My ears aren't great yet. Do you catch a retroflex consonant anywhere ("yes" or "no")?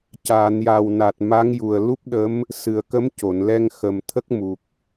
no